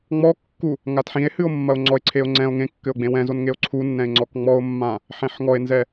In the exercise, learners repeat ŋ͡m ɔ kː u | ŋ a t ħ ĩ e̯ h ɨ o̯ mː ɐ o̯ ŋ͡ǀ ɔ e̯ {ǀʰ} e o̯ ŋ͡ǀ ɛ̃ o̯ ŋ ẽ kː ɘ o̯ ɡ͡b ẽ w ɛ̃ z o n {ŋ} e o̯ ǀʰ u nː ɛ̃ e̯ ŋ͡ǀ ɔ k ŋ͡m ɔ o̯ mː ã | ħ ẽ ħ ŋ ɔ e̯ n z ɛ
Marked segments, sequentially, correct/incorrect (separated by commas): correct, correct